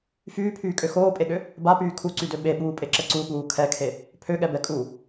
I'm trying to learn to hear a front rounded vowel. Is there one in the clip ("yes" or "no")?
yes